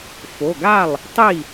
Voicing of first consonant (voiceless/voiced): voiceless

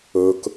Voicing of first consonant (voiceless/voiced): voiceless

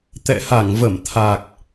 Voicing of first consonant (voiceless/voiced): voiceless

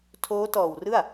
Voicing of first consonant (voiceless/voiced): voiceless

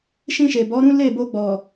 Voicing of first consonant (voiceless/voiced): voiceless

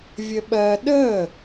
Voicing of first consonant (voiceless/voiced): voiced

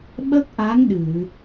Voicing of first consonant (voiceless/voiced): voiced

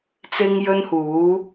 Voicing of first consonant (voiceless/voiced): voiceless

